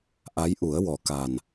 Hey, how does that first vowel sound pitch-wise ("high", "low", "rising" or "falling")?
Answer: rising